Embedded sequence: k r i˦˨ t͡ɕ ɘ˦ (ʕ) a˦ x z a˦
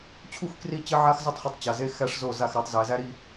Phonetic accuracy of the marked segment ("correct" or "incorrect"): correct